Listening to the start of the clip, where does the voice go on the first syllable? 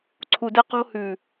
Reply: low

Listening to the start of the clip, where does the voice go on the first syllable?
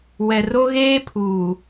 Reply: low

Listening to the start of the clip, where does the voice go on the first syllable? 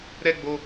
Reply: high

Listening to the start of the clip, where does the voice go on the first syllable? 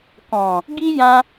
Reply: low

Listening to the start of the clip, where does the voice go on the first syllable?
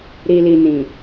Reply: low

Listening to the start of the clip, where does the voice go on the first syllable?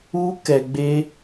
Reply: high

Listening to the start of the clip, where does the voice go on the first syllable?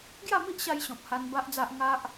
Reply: falling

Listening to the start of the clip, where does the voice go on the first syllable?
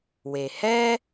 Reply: low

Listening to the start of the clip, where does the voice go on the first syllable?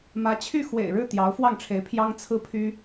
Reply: rising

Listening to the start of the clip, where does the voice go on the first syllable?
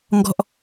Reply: low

